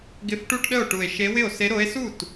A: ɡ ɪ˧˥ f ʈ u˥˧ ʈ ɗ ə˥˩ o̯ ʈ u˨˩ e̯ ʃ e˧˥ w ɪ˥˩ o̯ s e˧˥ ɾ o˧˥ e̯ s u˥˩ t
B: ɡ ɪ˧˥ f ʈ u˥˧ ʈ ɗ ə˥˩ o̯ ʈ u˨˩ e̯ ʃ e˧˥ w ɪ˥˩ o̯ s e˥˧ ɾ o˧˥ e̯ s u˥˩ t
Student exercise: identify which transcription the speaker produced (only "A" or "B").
A